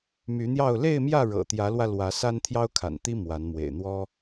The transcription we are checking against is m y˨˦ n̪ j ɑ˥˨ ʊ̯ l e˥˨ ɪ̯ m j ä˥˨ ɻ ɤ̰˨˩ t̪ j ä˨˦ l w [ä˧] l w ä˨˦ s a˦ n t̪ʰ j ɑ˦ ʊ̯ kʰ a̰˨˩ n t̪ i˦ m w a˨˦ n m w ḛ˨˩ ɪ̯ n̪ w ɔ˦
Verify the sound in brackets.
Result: correct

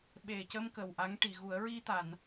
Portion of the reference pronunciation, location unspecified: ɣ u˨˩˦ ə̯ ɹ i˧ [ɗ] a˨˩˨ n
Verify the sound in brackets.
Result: incorrect: t̪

